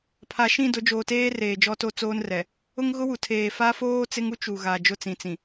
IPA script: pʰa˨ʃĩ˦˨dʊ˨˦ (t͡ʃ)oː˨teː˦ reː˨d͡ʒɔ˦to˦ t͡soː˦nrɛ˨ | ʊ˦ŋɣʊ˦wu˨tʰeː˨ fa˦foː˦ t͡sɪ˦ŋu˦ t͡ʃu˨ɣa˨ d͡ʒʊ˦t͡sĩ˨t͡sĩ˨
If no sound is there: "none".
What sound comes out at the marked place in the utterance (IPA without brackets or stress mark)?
d͡ʒ